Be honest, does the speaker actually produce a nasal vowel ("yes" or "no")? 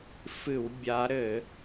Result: no